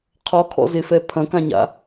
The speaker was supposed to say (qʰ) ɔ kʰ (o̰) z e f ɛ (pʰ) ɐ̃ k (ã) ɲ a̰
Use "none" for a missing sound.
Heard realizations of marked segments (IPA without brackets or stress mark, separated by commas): qʰ, ɔ̰, pʰ, ã